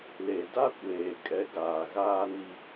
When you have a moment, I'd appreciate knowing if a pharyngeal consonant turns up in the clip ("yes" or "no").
no